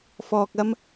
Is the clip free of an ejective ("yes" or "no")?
yes